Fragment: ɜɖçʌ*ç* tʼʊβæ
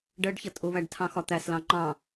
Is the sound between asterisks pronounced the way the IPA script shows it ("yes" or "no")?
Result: no